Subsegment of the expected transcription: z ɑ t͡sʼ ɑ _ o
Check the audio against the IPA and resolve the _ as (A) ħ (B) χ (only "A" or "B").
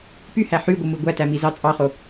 B